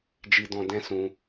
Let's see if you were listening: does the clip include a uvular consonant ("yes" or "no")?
no